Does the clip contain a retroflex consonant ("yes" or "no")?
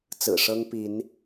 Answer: yes